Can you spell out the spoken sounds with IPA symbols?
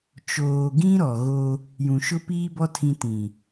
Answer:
t͡ʃoː˨ɡĩ˦ ɾɔ˨ɣo˦ | jũ˨ʃʊ˦piː˦bɔ˦ tʰĩ˦ tĩ˨

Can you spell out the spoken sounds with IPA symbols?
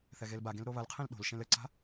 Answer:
θɛɣelbaɡẽl ɾoβɐlqʰẽl ɗo̤l ʃẽlɘǀa̤

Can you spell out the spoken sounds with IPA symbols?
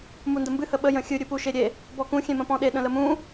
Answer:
mundəmbɨ həɓə jə̃xʲɨ ɾʲɨpuʃeɾʲe | bɔkũ xʲẽmə̃pɔ̃ɗe ɗə̃ləmũ

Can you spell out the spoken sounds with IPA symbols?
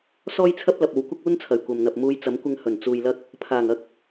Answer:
sɔː˥jt͡sʰɐ˥p̚lɐ˨p̚ o˨˧wkʷɪ˥k̚uː˥nt͡sʰɐ˨˩j kʷɐ˨m n̪ɐ˨p̚muː˧jt͡sɐ˨˥m kʷɪ˧ŋhɵ˨˩n t͡suː˨jlɐ˧k̚ | pʰaː˨˩ŋɐ˥k̚

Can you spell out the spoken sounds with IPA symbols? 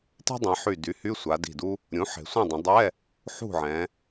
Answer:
ti̤˥dˤĩ˩˧ħy˧˩ dy˩˥ hy˧˥˧sʷa˩˧di̤˧˩du˥ | ɾʲũ˩˥ħe̤˩˧ sʷẽ˥˨ dˤə̃˩˧dˤɛ˧˥˧ | ħṳ˥˨ʕɛ̃˩˧

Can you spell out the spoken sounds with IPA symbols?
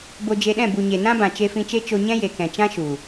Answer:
bo˧d͡ʒe˧ɗɛ̃˦˨ bu˨ɲe˨ nã˦bã˨ t͡ʃe˧fĩ˧t͡ʃe˦ t͡ʃo˧ɲɛ̃˦je˨kɛ̃˨ t͡ʃã˦ʃu˨

